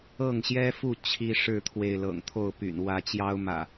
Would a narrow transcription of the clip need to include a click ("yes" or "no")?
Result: no